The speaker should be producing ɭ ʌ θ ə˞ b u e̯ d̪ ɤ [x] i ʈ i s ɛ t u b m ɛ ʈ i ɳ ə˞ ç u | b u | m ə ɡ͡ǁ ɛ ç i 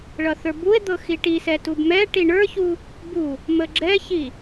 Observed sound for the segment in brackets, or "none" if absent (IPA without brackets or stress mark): x